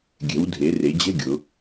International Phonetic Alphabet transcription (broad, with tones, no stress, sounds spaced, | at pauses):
ɡʲ ɛ̤˩˧ w dʱ e˩˧ r e˩˧ d͡ʑ ɛ̤˧˥˧ ɡʲ ʊ˩˧